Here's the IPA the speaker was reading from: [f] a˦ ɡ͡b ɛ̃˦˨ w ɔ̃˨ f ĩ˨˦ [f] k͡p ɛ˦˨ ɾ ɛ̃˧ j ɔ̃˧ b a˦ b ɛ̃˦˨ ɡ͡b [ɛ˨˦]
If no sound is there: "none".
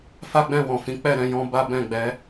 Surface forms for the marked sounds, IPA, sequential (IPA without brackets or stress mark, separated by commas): f, none, ɛ˨˦